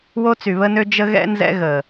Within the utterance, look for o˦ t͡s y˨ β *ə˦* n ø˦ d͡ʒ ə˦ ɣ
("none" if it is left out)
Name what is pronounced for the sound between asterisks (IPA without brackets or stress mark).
ə˦